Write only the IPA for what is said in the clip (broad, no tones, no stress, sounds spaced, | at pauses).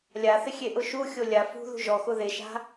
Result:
lʲ a θ ɪ xʲ e ʔ ʊ ʃ u xʲ o lʲ a f ṳ ð ṳ ʒ ɔ x ʊ ð e ʃ a̤